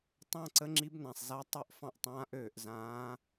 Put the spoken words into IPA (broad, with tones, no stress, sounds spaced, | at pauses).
tˤ ã˥˧ ǀ ə˧˥ ŋ͡ǁ i˧˥ b n ã˩ sˤ z a˧˥ tˤ ø˥˧ ʔ f ɑ̃˥˧ ʔ tˤ ãː˧˥ ʔ øː˩ ʔ z ãː˧˥